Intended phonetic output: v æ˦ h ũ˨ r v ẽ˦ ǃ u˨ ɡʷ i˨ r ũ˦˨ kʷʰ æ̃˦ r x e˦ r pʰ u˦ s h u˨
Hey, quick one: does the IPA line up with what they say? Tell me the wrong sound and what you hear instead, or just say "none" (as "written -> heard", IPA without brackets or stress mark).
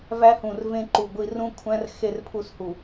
none